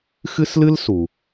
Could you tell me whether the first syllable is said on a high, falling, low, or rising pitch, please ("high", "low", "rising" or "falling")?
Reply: high